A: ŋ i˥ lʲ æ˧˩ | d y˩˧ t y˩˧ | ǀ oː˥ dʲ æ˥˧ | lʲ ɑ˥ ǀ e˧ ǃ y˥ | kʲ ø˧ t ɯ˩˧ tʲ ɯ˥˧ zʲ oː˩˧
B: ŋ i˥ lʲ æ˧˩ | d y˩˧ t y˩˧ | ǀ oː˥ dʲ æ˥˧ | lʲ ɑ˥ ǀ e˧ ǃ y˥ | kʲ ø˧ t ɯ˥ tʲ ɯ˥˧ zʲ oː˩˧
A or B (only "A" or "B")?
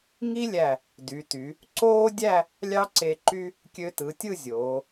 A